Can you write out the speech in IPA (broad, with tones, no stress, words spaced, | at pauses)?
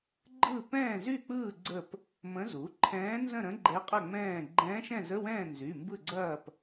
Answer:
ɡ͡ǃɯ˥˨ pɛ̃ː˥˨zy˥˨k͡pɯː˥˨ ɡ͡ǀə˥˨p | mə̃˧˥zu˩˥ǃʰɛ̃ː˧˥ nzə̃˥˨ɾə̃˧˥ ɡ͡ǃɛ˧˥qʼɐ˥˨ ŋ͡mɛ̃ː˥˨ ɡ͡ǃɛ̃ː˧˥ʃɛ̃˥˨zə˧˥˧wɛ̃ː˥˨ nzy˩˧˩mbɯ˥˨ɡ͡ǀɐː˥˨p